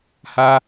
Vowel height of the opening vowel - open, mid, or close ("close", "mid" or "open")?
open